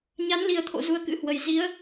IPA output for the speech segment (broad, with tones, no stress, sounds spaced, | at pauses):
ɲ a˨˦ n l i˨˩ ə̯ t̪ʰ o̰˧˨ z u˧ ə̯ k ɨ̰˧˥ h w ə˨˩ j z i˨˦ ə̯